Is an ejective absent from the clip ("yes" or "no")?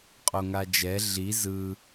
no